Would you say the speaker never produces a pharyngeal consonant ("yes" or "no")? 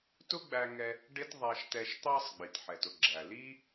no